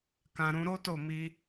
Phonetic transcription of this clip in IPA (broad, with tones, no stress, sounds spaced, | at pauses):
k ã˧ ɾ ũ˧ ɾ o˦ t o˦˨ m i˧